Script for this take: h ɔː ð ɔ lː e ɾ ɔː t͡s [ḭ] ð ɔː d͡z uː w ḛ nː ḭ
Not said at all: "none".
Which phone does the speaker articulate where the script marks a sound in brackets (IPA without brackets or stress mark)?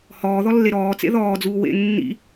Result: ḛ